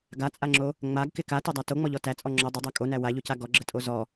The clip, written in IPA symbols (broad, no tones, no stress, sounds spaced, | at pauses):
ɡ a t͡sʼ a ŋ͡ǁ o | ŋ͡m a ɡ k ɪ k a t o dˤ a t o ŋ͡m ɔ ʎ ɔ t æ t͡sʼ ɔ ŋ͡ǁ ɔ dˤ ə dˤ æ kʼ o n æ w a ʎ o c a ɡ ɔ ɡ͡ǁ ə tʼ o z ɔ